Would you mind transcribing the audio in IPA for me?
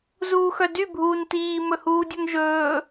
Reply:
z uː x œ d y bʱ uː n t iː m ɵ h uː dʲ œ ŋ ʒ ɵː

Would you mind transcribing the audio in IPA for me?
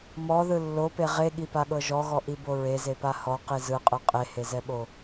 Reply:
m ɔ ð ɯ lː o p e ʁ e ɠ i p a ɠ ɤ ʒ ɔ ɣ ɔ ʔ i b o ɹ e z e p a h ɔ q i z ɯ qʼ ɯ qʼ e h e z ɛ ɓ o

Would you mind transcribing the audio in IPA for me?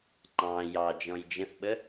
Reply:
ŋ͡ǃ ɑ̃ j ɑ d͡ʒ ɔ̃ j d͡ʒ ə̃ θ ɓ ə

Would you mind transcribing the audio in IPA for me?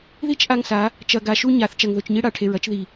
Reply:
ð i˦ t͡ʃ ʔ a˦ ŋ s a˨˦ | t͡ʃ ɐ˨ ɡ a˨ ʃ u˦ ɲ a˨ θ t͡ʃ ɐ˨ ŋ ð ɵ˨ t͡ʃ ɲ i˦ ɽ a˨ ʈʰ e˨ ɹ ɐ˦ t͡ʃ ð i˨

